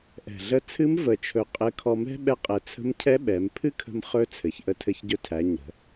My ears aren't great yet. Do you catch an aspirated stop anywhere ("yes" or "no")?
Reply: yes